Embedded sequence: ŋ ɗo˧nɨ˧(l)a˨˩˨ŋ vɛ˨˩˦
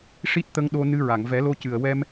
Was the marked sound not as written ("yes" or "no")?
yes